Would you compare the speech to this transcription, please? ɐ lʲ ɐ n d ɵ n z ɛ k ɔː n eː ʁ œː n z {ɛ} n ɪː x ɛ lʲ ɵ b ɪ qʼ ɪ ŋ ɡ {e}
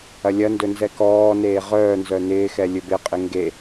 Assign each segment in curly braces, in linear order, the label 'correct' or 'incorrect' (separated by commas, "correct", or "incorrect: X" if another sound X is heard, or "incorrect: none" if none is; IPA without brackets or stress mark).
incorrect: œ, correct